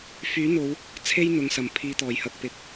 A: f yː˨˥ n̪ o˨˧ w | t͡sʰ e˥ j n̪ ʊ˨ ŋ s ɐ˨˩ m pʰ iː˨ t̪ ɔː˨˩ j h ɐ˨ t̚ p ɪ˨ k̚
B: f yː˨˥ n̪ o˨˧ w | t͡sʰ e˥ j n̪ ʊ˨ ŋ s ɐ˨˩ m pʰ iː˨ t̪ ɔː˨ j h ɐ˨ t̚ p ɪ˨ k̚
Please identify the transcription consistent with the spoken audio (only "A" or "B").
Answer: A